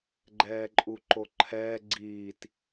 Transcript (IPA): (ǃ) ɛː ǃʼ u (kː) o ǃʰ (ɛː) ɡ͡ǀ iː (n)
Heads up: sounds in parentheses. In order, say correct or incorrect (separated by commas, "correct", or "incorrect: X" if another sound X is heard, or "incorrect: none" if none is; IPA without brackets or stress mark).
incorrect: ɡ͡ǃ, incorrect: ǃ, correct, incorrect: t